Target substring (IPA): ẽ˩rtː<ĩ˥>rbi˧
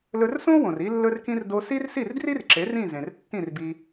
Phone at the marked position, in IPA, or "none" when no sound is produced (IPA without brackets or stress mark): ĩ˥˩